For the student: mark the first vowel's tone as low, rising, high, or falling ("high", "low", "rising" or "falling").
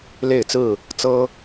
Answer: falling